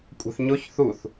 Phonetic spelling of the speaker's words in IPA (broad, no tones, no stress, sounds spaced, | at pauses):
kʷʼ æ̤ θ ɲ o ç θ u θ